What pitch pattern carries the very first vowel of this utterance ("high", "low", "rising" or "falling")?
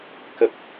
low